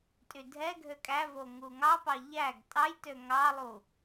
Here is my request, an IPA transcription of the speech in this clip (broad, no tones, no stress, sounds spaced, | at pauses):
tʼ y dʱ ɛ ɡʱ ø kʼ æ v o ŋ u ŋ ɑ p ɑ ʎ æ ɡ tʼ ɑ j t ø ŋ ɑ lˠ u